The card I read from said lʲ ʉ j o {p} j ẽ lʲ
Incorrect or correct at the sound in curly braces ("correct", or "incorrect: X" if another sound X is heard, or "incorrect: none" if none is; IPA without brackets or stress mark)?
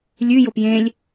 correct